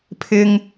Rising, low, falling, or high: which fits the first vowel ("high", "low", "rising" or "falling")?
high